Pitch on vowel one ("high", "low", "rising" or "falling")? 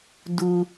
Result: low